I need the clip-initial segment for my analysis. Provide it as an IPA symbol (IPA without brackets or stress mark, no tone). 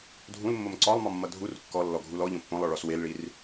dʱ